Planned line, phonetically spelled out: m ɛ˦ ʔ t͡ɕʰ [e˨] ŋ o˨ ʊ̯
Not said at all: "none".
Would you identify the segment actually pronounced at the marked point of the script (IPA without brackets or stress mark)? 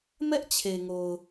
e˨